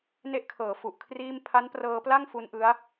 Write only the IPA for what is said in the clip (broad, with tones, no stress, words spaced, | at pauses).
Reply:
ne˦˥ʔkʰɤː˩˦ fu˨˩ʔkʰriː˥˩m pʰa˦˥nprɤː˧pla˥˩ŋ fu˦˥nʔɯ˦˥a̯